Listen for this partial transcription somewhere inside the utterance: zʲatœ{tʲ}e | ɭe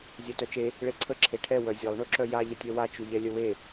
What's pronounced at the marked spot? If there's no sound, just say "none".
t͡ʃ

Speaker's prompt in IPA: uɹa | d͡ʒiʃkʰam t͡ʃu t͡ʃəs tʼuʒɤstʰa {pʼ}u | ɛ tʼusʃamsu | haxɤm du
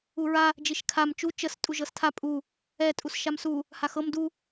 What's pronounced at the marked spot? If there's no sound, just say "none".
pʼ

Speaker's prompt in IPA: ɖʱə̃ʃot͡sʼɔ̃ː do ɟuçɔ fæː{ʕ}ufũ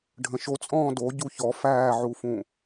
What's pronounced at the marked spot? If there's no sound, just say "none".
ʕ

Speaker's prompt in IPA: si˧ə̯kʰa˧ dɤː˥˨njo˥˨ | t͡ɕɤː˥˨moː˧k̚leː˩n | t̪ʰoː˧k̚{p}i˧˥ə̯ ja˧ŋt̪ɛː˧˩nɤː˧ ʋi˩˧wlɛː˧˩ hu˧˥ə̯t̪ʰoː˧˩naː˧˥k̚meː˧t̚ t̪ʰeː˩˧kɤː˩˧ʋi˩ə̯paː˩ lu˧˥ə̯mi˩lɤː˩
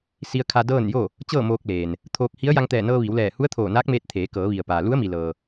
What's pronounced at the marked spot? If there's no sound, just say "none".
h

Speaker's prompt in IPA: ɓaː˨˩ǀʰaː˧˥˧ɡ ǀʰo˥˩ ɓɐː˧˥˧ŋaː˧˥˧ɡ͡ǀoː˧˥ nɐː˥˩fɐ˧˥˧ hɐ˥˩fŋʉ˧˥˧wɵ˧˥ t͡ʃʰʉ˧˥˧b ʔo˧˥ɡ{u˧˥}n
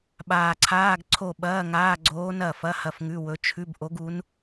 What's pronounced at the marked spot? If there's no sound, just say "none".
u˧˥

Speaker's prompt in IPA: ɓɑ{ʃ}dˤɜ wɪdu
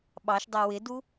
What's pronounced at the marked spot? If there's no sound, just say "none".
ʃ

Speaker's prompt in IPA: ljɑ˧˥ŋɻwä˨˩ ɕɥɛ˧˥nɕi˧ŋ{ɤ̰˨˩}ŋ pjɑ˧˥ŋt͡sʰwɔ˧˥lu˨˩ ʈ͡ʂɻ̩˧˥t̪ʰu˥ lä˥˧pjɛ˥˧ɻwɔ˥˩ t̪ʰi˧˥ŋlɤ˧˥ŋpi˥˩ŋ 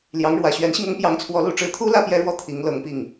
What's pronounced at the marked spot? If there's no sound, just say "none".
ɤ˥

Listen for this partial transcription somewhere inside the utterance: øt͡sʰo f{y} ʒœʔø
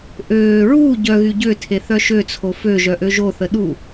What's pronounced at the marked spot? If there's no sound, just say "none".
ø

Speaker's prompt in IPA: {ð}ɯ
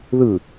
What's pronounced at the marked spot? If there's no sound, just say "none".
ð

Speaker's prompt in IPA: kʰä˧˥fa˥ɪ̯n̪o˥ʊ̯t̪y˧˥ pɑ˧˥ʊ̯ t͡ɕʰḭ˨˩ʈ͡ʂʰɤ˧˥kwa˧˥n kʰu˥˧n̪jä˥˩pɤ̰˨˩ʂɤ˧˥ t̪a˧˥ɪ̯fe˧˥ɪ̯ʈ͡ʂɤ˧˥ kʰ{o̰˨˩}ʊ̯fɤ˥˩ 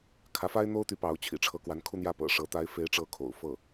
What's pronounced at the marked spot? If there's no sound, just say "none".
o̰˨˩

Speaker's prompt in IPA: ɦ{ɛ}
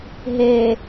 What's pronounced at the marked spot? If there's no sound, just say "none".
e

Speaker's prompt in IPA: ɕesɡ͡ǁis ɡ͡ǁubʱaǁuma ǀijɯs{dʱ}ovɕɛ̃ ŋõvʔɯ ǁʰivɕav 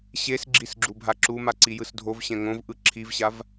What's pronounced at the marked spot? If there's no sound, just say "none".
dʱ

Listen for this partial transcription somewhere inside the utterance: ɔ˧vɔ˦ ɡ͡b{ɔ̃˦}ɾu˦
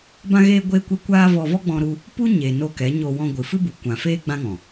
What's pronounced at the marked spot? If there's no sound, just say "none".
ɔ̃˦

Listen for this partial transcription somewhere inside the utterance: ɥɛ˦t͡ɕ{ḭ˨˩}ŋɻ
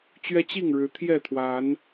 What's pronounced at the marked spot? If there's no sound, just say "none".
i˥˨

